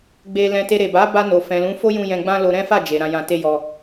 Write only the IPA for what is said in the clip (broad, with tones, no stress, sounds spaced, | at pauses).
ɡ͡b e˧ l ɛ̃˧ t e˧ ɾ e˨ b a˨˦ b a˧ n o˨ f ɛ̃˨ l ũ˨˦ f o˦ j ũ˧ j ɛ̃˧ ɡ͡b ã˦ l o˧ ɾ ɛ̃˦ f a˦˨ d͡ʒ e˨ ɾ ã˧ j ã˧ t e˦ j ɔ˧